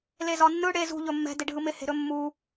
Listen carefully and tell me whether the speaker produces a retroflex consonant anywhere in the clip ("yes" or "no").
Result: yes